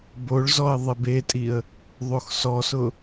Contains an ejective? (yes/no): yes